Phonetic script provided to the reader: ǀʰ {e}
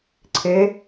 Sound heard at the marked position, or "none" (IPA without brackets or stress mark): e